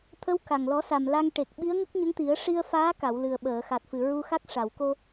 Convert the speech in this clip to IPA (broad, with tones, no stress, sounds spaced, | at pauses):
t̪ʰ ə˧˥ w k a˨˩ ŋ l ɔ˨˩˦ s a˨˩ m l a˧ ŋ ʈ e˨˩ k̚ ɓ i˧˥ ə̯ ŋ ə˦˥ k̚ ɲ ə˧˥ ŋ t̪ i˨˩˦ ə̯ ʂ i˧ ə̯ f aː˧˥ k a˨˩˨ w l ɨ˨˩ ə̯ ɓ əː˨˩˨ x a˨˩ t̚ f ɨ˨˩ ɹ u˧ x a˦˥ k̚ ʂ a˨˩˨ w k o˧